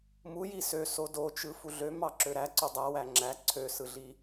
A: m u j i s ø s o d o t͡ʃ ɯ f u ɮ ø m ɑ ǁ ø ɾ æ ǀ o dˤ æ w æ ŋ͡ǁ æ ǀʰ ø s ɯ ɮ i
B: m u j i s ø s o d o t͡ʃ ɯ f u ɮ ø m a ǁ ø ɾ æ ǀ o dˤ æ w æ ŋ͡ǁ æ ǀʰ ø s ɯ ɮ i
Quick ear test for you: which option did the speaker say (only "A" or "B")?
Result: A